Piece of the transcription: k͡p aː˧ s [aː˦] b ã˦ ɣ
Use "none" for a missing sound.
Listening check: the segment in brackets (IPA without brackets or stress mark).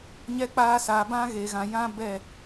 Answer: aː˨